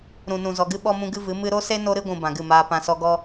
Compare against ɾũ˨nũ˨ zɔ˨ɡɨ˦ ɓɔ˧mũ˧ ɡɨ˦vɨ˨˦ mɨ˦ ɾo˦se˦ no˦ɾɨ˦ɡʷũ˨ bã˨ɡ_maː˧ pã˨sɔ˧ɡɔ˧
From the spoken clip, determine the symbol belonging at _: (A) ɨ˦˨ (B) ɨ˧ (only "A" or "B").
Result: A